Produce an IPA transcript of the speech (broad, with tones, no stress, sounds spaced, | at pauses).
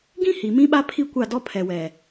ɡ ĩ˦ h i˨ m ĩ˦ ɓ a˦ pʰ i˦ kʷ a˦˨ d ɔ˦ pʰ ɛ˨ w ɛ˨